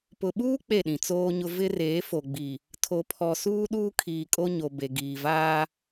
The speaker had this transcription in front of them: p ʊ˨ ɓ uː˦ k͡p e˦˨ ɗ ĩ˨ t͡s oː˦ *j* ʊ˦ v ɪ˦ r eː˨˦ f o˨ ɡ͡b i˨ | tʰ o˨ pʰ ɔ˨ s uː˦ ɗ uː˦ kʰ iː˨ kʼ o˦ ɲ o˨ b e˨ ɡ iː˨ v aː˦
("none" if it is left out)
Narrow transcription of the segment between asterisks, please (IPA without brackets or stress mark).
ɲ